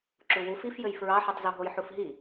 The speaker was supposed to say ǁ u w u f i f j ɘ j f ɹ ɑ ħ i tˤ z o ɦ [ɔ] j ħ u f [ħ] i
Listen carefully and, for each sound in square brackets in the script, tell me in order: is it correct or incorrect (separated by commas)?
incorrect, incorrect